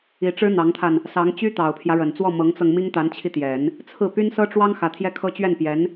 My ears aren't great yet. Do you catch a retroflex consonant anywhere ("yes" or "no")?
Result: yes